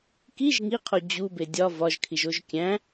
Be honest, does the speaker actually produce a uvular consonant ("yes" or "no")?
yes